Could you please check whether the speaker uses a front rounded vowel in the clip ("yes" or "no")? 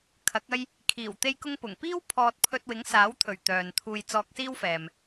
yes